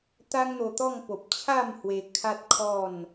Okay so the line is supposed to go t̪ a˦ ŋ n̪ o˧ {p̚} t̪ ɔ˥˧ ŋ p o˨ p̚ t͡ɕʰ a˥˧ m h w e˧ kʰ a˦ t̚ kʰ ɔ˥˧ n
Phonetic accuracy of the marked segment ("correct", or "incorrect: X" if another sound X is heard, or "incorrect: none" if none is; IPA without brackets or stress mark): incorrect: none